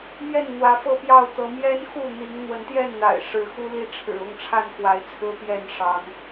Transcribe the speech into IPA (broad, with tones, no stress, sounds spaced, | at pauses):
m j ɛ˥˨ n n̪ w ä˨˦ f ɤ˥˨ p j ɑ˥˨ ʊ̯ t̪ ɤ˨˦ m j ɛ˦ n x u˥˨ n̪ i˨˦ ŋ n̪ w ə˨˦ n t̪ j ɛ˥˨ n n̪ a̰˨˩ ɪ̯ ʂ ɻ̩˨˦ x u˦ l i˦ ʈ͡ʂʰ ɻ̩˨˩ ʊ˥˨ ŋ ʈ͡ʂʰ a˥˨ n k w a˨˦ ɪ̯ t͡sʰ ɹ̩˦ p j ɛ˥˨ n ʂ ɑ˨˦ ŋ